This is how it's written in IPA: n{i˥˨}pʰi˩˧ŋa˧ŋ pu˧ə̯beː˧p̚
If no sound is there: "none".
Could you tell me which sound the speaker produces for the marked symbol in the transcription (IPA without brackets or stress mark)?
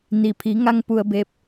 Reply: i˩